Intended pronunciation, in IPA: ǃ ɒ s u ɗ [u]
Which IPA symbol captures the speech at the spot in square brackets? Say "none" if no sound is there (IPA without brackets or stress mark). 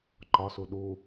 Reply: u